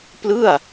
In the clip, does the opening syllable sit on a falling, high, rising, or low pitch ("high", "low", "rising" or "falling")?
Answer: falling